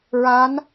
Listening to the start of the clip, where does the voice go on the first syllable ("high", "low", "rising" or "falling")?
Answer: rising